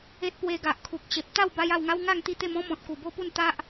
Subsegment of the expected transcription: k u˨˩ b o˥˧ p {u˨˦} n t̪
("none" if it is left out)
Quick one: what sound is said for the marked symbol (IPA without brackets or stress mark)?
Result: u˥˧